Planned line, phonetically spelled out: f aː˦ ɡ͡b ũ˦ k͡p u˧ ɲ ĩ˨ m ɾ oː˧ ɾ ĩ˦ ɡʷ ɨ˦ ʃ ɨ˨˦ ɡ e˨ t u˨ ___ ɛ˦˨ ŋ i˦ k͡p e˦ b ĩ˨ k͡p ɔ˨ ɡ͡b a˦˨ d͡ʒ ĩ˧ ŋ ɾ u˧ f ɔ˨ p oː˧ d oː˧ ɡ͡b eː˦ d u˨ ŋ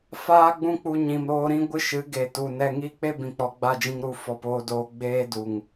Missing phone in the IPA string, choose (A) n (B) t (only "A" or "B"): A